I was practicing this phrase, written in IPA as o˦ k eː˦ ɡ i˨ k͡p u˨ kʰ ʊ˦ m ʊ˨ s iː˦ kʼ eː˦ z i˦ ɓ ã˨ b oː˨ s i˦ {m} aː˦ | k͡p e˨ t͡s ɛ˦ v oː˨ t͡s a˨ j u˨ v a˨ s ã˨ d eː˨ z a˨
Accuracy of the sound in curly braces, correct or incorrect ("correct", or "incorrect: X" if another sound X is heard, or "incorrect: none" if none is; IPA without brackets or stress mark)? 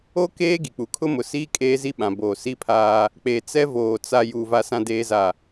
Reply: incorrect: pʰ